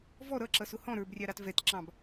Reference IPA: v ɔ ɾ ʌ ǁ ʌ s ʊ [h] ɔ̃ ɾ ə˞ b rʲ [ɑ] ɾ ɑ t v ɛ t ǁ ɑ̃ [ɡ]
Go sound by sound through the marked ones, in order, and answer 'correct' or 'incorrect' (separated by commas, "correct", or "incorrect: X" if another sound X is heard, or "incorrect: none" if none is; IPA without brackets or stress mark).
correct, correct, incorrect: b